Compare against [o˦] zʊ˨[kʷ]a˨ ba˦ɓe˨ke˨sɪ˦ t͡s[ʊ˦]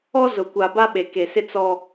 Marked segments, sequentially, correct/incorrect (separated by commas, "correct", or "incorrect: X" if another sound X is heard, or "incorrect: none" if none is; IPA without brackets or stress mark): incorrect: ɔ˦, correct, incorrect: ɔ˦